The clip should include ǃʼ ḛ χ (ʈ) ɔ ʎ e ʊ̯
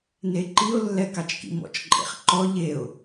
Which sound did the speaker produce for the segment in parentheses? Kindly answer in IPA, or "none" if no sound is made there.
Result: ǃ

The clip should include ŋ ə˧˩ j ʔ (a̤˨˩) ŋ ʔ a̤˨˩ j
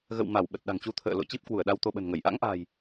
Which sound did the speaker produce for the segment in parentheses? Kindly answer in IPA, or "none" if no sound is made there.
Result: a̰˧˥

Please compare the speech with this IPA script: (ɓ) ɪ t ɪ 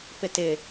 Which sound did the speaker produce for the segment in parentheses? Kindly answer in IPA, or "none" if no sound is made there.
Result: p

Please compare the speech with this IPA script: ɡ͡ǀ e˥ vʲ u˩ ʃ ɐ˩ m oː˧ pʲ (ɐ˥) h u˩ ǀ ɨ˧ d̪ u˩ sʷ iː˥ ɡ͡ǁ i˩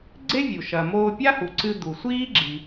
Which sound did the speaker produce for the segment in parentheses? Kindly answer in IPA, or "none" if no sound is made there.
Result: a˥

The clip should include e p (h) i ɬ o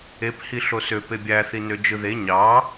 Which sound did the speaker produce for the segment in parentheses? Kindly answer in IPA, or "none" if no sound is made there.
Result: h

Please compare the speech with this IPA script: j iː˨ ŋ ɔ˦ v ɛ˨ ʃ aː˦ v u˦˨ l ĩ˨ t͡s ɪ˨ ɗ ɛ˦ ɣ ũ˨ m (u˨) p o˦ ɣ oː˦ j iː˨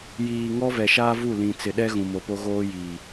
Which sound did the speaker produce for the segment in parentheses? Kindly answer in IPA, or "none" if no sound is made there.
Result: o˨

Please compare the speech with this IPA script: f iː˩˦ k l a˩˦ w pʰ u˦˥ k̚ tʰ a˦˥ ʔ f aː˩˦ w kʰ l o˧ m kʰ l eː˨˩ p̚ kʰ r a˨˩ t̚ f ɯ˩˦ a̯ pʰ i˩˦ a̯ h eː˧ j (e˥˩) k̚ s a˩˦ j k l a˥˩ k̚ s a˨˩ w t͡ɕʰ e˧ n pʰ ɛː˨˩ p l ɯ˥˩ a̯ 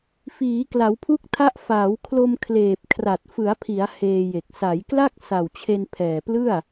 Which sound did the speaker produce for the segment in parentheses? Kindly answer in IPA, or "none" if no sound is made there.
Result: e˨˩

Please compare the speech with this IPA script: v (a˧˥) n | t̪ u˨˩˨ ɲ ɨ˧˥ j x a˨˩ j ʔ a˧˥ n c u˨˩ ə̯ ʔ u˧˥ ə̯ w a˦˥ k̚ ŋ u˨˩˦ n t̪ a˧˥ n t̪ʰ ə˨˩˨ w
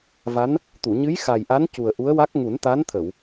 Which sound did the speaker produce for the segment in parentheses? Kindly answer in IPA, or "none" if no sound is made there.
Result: a˧˥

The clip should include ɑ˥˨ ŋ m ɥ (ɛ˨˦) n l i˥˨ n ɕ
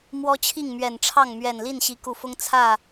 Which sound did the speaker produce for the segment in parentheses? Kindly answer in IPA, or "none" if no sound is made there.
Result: ɛ˨˩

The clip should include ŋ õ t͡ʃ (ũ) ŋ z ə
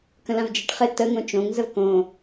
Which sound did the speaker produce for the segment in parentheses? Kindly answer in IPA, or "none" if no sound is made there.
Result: õ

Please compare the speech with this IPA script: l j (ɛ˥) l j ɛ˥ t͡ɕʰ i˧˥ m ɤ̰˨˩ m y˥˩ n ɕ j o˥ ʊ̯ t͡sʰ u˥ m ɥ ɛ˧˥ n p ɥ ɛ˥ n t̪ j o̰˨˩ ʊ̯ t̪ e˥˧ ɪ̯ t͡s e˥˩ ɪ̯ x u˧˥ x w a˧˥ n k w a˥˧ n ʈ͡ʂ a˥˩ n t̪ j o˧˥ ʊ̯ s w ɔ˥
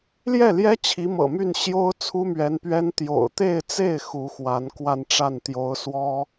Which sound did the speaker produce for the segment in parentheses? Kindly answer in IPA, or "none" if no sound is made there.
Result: ɛ˥˩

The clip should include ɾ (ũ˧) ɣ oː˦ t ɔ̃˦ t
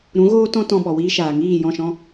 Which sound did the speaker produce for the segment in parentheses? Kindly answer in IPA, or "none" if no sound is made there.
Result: ũ˨˦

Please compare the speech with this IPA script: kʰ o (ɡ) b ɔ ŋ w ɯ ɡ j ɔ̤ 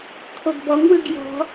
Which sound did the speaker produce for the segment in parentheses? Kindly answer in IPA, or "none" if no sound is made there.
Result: ɡ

